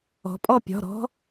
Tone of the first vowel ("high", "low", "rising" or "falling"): rising